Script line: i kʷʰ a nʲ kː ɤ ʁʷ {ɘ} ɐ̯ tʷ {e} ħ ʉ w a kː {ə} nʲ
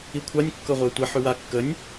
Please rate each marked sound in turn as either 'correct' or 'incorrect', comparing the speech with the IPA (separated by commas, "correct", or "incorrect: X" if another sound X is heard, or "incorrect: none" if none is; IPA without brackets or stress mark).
incorrect: e, correct, correct